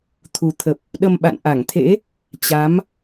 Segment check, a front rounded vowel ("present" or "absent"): absent